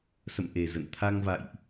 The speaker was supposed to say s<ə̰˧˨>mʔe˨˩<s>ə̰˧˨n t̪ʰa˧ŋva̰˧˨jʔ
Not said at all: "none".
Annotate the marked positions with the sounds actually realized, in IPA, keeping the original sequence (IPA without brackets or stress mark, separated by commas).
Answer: ə̰˧˨, z